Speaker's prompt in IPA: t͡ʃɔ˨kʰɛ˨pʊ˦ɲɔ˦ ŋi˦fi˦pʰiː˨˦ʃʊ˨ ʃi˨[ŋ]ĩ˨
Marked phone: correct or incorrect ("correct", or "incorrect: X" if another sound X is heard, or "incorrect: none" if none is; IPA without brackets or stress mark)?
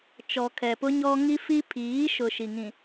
correct